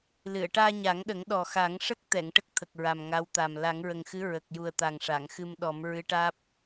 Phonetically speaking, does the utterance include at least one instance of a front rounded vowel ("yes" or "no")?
no